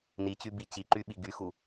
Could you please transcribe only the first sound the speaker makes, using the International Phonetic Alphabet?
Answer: n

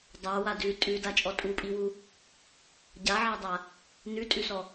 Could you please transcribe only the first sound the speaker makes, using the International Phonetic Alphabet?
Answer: dˤ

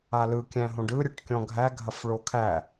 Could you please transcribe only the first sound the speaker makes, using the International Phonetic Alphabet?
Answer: a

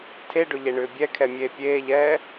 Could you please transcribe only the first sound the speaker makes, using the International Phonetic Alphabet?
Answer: tʰ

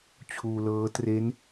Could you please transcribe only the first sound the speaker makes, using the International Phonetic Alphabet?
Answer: t͡ɕʰ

